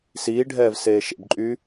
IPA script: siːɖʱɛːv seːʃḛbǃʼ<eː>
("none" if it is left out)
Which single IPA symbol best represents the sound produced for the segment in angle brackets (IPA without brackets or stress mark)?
yː